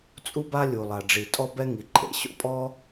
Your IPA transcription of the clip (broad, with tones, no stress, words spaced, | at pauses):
t͡sʼu˥ba˥ lʲu˩lˠa˩ɖ͡ʐi˩ tʼɔ˥bɛ˥ŋi˩ǃʼḛ˩ ɕo̰˥pʼɔ˥